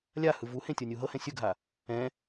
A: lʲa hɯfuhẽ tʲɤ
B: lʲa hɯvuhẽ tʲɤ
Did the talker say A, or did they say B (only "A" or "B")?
B